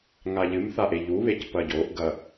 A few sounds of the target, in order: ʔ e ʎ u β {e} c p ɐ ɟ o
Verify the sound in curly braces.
correct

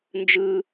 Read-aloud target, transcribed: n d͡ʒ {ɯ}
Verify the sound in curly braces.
correct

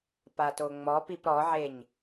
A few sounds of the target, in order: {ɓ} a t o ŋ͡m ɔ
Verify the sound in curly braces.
incorrect: p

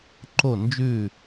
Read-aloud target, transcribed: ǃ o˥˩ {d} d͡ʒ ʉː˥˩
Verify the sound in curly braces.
incorrect: n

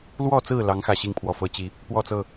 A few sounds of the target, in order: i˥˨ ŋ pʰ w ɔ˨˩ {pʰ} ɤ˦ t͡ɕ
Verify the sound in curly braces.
incorrect: f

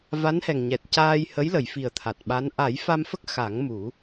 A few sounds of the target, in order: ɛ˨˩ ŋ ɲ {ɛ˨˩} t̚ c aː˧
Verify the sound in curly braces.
correct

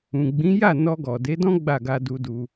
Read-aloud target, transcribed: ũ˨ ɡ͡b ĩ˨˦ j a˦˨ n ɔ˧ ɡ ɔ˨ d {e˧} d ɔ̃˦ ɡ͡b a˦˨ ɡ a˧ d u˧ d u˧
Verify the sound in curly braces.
incorrect: e˨˦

